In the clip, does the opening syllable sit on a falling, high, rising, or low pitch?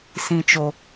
high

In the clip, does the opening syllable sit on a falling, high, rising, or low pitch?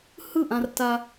falling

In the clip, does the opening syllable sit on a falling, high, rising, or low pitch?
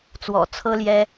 low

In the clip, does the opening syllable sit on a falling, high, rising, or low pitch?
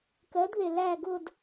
rising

